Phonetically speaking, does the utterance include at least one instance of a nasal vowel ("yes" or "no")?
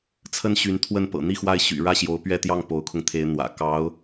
no